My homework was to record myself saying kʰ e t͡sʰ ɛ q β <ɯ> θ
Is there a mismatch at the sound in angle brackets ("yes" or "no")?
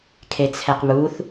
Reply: yes